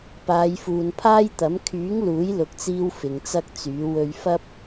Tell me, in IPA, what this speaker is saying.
p aː˨˧ j f uː˨ n pʰ aː˥ j t̪ ɐ˨˥ m kʰ yː˨˥ ŋ l uː˨˥ j l ʊ˨ k̚ t͡s iː˧ w f ɪ˨ ŋ t͡s ɐ˥ k̚ t͡s yː˨˥ w ɵ˧ ɥ f ɐ˥ p̚

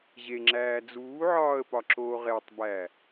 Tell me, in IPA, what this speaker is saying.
ʑ e ŋ͡ǁ æː d͡z uː ʕ ɒː ə̯ p ɒ ǁ oː ʁ e tˤ b æ

